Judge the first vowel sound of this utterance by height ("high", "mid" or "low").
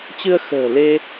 high